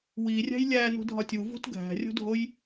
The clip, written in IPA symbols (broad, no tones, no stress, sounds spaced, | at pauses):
w i rʲ æ̤ j lʲ æ n ṳ dʱ ɒ tʲ u v ṳ t ɡʱ æ̤ rʲ o̤ dʱ o j